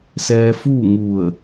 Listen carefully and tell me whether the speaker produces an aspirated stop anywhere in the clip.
no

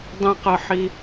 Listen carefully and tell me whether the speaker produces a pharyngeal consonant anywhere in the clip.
yes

